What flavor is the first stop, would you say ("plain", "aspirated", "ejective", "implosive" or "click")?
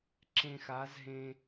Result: click